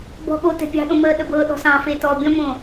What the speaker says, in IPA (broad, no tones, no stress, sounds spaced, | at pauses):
b ɔ̤ ɠ o t ɛ̤ pʲ ɑ̤ ɗ õ m əː ɗ ə b ɤː ɗ ɔ̤ s ɑ̃ f e t ɔː bʲ ɔ̃ m õ